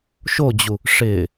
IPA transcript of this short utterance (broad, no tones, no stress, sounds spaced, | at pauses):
ʃ o d͡ʑ u | ʂ ɪ